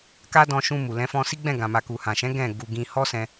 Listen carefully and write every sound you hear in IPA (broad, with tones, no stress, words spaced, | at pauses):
ka˦dɔ̃˧ʃũ˧mu˨ lɛ̃˨˦fɔ̃˧si˦ ɡ͡bɛ̃˦˨ɡã˨ ma˨ku˨hã˨ʃɛ̃˨˦ ɡɛ̃˦˨ ɡu˨ ɡĩ˧ hɔ˦sɛ̃˧